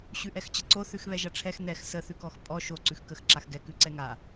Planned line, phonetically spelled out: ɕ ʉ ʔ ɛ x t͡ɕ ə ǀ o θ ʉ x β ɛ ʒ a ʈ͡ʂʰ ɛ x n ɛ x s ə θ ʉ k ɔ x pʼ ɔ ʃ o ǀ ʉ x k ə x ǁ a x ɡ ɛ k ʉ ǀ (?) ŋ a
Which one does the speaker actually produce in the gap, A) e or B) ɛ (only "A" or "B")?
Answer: B